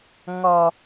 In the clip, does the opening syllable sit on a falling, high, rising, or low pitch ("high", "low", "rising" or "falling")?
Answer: low